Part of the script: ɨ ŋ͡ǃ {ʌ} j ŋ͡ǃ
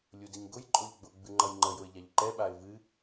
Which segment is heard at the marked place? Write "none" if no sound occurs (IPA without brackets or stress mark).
ʌ